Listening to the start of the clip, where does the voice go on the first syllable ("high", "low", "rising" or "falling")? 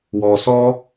low